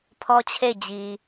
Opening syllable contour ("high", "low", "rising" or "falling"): high